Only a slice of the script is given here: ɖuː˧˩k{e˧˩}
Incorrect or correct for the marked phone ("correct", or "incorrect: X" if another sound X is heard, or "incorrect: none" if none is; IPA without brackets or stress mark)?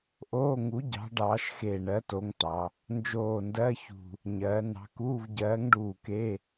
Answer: incorrect: e˧˥˧